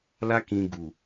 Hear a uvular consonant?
no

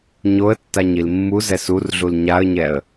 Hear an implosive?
no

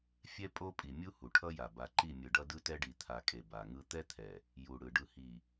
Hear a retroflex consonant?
yes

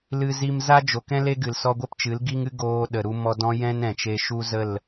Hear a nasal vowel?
yes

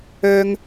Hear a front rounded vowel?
yes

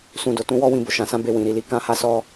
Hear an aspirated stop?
no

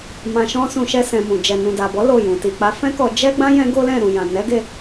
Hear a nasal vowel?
yes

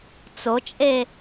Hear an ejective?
yes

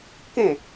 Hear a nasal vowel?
yes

